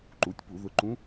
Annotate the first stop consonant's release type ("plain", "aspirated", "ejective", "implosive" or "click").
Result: click